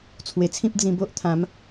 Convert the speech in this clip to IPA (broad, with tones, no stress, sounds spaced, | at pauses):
t͡sʰ w e˨˩ t͡sʰ ĩ˦ p̚ d͡z ĩ˧ b o˦ ʔ t̪ʰ ã˨˦ m